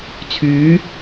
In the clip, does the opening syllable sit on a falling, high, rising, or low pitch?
rising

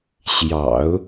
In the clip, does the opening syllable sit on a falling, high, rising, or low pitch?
low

